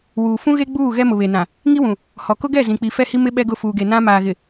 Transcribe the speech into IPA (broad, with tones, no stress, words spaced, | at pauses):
wuː˨fũ˦ɣe˦ ɡ͡buː˦˨ ɣɛ˦mʊ˨βe˨nã˨ | ŋi˦wũ˨ | hɔ˨kʊ˦ɡɛ˦˨ zĩ˨k͡pi˨fɛ˦˨hi˦ mɪ˦ ɓɛ˦ɡʊ˦˨ fuː˨ɡe˨ nã˦ maː˨ɣɪ˨